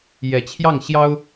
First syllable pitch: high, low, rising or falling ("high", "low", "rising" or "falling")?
low